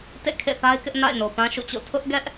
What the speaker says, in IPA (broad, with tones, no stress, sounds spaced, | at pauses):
t ḛ˦˨ kʰ ḛ˦˨ θ a˦ ɪ̯ k ɪ˦ ʔ n a̰˦˨ ɪ̯ n o˨ p ã˦ ʃ ṵ˦˨ t͡ɕ o̰˦˨ tʰ ʊ˦ ʔ ɡ ɛ˦ ʔ